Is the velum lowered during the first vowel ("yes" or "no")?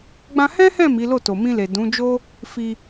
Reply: yes